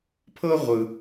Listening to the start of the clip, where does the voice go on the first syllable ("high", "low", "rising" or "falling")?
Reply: high